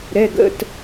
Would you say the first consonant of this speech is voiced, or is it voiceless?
voiced